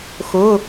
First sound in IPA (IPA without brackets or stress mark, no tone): x